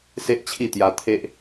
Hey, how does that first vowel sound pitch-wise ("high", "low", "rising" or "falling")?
high